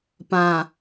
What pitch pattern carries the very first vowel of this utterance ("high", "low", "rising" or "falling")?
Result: low